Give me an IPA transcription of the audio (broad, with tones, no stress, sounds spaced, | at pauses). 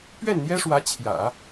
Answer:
p ɥ ɛ˥˩ n n̪ j ɛ˥ ʂ w ä˧˥ t͡ɕʰ j ä̰˨˩˦